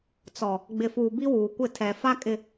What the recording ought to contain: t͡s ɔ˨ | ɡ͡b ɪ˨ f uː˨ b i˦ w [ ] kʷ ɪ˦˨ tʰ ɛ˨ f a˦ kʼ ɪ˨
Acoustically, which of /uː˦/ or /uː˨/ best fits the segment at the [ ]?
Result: uː˨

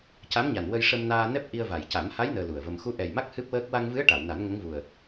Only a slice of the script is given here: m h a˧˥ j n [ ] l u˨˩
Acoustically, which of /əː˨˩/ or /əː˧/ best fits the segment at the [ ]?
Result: əː˧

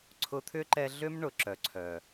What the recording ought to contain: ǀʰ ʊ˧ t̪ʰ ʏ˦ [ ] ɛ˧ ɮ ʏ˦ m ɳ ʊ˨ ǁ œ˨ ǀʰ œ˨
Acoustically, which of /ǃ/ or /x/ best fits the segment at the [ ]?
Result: ǃ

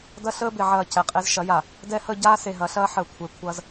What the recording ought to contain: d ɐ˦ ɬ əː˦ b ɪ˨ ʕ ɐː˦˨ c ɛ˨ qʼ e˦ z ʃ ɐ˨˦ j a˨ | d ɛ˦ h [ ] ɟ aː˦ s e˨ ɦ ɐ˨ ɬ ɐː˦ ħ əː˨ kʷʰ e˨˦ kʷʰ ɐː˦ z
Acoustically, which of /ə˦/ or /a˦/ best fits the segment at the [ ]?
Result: ə˦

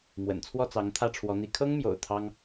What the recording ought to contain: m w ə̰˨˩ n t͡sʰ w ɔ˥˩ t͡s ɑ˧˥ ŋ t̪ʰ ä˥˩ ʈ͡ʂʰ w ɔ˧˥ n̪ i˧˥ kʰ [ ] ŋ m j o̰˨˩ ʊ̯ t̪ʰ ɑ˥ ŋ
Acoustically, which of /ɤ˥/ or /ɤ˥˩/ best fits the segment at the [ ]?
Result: ɤ˥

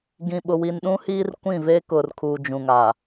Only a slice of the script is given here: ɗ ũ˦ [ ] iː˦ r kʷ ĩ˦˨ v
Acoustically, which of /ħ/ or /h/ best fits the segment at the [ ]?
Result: h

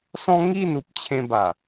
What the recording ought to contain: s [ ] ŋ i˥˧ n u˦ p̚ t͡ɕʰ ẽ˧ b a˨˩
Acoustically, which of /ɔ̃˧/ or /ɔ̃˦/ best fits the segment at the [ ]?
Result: ɔ̃˦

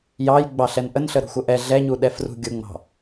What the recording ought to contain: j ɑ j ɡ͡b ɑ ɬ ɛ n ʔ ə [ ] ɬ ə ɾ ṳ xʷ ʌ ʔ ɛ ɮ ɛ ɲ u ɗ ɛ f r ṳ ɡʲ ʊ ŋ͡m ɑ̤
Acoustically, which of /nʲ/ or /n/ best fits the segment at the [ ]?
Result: n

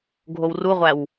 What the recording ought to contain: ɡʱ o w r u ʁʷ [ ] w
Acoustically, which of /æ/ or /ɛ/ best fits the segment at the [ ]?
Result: æ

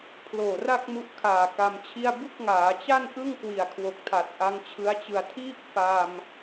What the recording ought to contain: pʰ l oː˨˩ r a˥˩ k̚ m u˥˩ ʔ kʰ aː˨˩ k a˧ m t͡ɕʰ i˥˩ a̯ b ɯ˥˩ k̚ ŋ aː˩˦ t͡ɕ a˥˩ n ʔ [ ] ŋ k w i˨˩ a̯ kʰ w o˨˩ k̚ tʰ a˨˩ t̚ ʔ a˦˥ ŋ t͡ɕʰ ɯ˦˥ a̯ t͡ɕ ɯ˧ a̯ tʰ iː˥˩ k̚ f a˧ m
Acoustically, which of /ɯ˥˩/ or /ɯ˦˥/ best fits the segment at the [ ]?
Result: ɯ˥˩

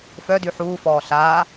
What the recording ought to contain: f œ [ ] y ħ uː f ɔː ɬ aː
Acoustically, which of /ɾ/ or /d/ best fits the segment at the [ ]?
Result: d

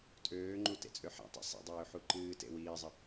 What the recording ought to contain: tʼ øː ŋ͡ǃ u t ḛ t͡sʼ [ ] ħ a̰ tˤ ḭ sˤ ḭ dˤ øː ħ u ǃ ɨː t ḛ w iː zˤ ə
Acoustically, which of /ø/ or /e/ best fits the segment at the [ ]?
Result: ø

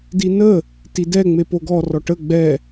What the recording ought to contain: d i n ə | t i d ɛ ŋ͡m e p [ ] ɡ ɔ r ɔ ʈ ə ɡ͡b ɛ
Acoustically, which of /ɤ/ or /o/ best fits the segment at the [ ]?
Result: o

